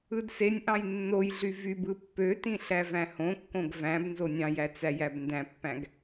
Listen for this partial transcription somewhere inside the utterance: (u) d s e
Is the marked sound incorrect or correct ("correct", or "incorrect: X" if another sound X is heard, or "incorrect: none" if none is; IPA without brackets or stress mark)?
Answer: incorrect: ɯ